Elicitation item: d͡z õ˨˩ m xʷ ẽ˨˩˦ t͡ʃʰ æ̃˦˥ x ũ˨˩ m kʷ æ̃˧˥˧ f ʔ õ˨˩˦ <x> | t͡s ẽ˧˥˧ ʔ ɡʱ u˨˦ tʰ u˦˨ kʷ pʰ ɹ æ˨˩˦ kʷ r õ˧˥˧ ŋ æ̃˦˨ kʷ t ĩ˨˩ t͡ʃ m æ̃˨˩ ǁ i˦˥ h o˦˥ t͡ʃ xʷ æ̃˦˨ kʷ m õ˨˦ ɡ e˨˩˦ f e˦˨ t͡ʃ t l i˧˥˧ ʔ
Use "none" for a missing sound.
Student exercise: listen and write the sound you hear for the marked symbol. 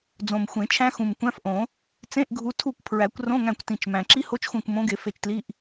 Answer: none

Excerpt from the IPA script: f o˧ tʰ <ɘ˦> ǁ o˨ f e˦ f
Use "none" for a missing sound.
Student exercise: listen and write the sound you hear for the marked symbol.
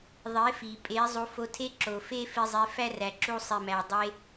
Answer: e˦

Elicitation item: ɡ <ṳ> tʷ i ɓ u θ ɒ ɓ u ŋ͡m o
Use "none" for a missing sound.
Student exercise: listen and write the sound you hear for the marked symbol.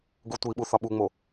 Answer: u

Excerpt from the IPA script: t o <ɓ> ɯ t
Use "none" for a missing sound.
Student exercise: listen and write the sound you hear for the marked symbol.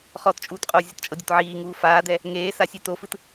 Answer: f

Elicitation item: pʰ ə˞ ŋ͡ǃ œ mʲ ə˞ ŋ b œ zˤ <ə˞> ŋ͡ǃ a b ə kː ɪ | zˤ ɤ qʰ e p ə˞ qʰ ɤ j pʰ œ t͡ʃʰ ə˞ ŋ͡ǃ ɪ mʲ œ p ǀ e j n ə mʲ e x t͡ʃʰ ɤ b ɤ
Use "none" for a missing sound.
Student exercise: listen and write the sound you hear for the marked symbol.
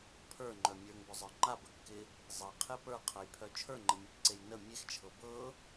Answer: ə˞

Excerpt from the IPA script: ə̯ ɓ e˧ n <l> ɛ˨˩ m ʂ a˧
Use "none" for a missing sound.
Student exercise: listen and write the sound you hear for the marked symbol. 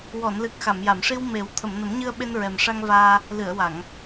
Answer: ɹ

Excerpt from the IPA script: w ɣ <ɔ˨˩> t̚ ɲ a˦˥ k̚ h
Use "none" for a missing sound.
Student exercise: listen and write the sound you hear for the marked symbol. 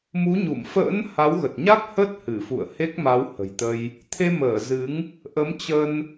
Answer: ə˨˩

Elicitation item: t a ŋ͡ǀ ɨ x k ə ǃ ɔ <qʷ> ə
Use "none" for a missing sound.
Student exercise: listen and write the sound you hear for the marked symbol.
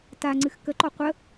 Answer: qʷ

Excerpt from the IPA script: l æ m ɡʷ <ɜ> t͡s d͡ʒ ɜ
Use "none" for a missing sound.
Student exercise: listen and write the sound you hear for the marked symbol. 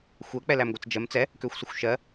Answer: ɜ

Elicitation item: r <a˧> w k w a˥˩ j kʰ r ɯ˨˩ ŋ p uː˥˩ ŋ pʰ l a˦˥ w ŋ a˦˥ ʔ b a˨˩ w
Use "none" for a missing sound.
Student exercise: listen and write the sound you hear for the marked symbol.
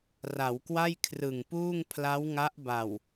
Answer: a˩˦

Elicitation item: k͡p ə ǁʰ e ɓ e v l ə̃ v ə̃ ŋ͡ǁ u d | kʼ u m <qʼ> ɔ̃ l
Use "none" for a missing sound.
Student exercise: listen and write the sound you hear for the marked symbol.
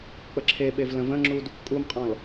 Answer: qʼ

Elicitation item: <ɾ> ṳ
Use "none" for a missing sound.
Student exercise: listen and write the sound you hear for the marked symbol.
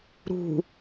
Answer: ɾ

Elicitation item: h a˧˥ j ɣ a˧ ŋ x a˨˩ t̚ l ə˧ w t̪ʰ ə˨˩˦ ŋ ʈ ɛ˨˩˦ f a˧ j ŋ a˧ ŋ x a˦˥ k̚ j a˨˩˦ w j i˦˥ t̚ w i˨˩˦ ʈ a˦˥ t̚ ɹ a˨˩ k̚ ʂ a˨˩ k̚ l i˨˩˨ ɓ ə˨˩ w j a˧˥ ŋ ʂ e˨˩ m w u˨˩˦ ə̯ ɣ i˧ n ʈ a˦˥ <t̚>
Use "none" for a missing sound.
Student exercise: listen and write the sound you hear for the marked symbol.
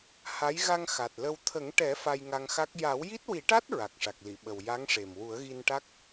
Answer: k̚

